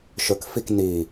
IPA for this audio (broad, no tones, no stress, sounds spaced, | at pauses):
ʃ ɵ k f i k n i